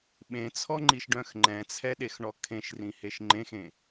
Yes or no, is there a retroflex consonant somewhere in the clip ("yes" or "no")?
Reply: yes